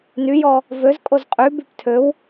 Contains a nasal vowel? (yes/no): no